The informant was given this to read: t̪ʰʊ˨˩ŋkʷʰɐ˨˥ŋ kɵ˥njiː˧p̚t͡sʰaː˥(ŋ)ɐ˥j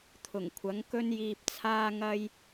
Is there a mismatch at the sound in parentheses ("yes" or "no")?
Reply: no